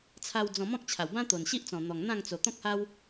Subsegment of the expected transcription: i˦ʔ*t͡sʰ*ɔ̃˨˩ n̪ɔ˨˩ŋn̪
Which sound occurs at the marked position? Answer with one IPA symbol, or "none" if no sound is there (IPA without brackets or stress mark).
t͡s